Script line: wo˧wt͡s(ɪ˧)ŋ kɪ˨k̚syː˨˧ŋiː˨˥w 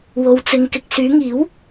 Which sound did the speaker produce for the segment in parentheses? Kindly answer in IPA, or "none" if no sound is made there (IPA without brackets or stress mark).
ɪ˧